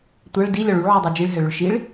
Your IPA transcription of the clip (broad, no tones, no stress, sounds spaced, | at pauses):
tʷ a ɭ d i lʲ ɒ ɭ u ɭ ʕ ʉ dˤ u d͡ʒ i ɭ ɦ ɛ ɭ ʏ ɭ ʃ i ɭ